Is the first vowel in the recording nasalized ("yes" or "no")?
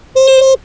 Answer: no